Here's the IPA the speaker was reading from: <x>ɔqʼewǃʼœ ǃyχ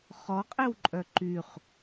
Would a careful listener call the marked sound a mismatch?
yes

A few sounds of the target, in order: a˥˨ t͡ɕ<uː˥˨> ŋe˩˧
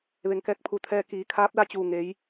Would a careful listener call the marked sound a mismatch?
yes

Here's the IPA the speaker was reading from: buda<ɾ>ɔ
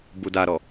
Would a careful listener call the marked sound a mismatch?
no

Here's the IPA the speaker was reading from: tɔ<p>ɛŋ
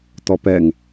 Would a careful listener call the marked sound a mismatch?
no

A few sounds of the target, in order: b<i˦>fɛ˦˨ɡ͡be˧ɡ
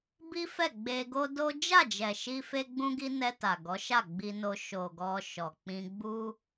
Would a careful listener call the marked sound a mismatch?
no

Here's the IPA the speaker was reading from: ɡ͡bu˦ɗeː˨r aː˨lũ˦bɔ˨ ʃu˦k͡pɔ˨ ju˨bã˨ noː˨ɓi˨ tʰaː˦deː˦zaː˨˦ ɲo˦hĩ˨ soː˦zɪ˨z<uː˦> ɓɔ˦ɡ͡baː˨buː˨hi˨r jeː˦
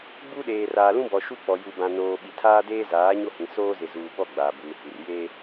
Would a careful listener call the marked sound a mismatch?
yes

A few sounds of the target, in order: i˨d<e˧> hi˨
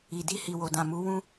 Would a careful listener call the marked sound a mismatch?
yes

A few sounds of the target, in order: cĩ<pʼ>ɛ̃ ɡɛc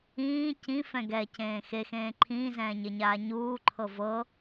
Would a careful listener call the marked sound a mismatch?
yes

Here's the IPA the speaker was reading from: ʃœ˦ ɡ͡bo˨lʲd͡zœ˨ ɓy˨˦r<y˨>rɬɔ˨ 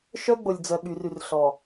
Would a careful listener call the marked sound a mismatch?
no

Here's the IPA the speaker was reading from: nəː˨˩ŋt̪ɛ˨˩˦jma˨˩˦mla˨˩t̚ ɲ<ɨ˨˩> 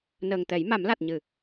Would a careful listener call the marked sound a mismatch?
yes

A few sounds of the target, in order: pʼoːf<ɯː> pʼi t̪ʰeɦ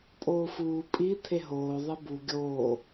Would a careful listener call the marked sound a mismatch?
yes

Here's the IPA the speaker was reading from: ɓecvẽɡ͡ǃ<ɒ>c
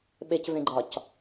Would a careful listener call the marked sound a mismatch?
no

